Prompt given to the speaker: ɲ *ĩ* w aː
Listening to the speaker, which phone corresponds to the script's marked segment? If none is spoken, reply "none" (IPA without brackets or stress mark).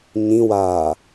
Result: ĩ